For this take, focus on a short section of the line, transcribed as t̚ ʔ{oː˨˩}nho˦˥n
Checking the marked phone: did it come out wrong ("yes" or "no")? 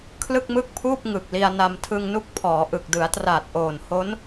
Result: no